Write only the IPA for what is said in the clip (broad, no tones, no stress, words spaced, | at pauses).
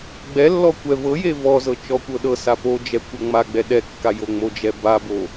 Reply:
ɡ͡bɛlːɔ kʷɛvɤje vɔzɤ t͡ʃɔkʷɤɗɤsa pod͡ʒɛ kʷɤŋ͡maɡ͡bɛ ɗɛkːa joŋ͡mod͡ʒɛ babo